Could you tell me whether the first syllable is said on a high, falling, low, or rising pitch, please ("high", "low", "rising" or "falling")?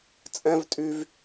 high